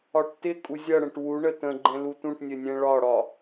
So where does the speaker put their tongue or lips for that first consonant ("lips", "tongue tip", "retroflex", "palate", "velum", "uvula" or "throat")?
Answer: retroflex